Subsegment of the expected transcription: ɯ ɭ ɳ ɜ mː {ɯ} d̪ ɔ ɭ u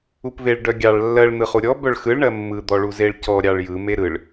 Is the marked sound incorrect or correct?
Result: correct